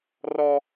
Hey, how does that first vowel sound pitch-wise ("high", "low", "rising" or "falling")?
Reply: high